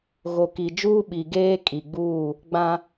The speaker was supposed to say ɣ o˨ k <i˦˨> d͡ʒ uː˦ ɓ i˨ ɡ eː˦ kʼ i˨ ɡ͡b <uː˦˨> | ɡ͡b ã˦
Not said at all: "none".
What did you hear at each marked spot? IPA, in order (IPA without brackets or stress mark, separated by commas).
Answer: i˨, uː˦˨